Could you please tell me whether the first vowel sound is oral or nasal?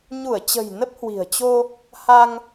oral